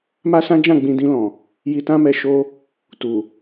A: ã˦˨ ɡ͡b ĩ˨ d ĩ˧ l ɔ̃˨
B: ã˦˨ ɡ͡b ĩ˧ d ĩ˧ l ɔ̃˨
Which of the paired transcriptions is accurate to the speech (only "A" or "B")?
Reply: B